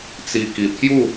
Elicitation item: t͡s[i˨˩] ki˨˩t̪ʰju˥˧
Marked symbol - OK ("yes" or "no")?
yes